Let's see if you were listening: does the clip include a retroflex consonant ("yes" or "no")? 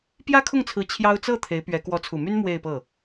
no